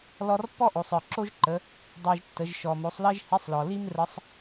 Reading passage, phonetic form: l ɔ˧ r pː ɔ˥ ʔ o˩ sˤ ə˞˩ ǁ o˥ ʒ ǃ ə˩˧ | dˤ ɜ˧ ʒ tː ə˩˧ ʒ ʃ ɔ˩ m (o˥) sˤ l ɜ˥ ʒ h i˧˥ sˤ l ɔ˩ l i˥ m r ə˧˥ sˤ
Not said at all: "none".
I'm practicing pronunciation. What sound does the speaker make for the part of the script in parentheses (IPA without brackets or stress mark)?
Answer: o˩˧